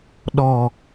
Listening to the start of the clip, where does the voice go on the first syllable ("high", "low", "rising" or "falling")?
low